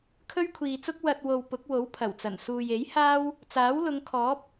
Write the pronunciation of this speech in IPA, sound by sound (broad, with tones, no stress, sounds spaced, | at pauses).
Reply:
kʰ ɵ˥ ɥ kʷʰ iː˨ t͡s ʊ˥ k̚ w ɐ˨ t̚ w o˨ w p ʊ˨˥ k̚ w o˨˥ w pʰ ɐ˨˩ w t͡s ɐ˨˩ n s uː˨ j e˨˥ j h aː˥ w | t͡s aː˨˥ w l ʊ˨˧ ŋ kʰ ɔː˨˥ p̚